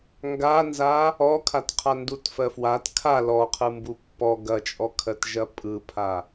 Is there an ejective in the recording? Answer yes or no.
yes